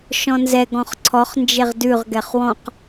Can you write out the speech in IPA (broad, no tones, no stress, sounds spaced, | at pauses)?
ʃ ɔ̃ n z ɛ ɡ ɔ̃ χ ǀʰ ɔ χ n d͡ʒ e ʁ d ʉ ʁ ɡ ɛ χ w ɔ̃ q